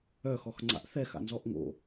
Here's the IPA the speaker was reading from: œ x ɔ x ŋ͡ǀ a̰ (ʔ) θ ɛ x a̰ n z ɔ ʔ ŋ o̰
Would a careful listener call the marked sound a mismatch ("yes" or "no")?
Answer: no